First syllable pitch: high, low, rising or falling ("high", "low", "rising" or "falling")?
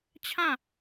falling